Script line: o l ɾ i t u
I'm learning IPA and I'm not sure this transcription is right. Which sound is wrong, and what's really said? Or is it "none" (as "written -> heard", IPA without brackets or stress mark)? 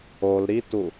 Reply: none